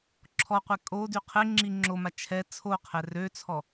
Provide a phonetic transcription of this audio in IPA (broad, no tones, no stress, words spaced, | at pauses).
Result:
ǁʰɔqʷɛ kʼody qʰeŋ͡ǁi ŋ͡ǁoma t͡ʃʰɛ t͡sʰoqʰɛ røt͡sʰɔ